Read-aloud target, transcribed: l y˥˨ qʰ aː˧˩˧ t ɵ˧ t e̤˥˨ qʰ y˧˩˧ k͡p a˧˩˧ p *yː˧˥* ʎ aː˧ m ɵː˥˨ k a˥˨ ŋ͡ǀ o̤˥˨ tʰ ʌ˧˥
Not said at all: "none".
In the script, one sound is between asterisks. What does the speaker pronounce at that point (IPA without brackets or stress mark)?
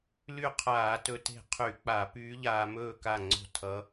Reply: yː˧˥